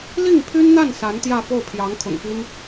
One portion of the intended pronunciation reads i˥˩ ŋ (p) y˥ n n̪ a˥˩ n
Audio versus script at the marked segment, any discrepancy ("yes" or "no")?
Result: yes